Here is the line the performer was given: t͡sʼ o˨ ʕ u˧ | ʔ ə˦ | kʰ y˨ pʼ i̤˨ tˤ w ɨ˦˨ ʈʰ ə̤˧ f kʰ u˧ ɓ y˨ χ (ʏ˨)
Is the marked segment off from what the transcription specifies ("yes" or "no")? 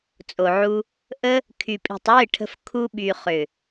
no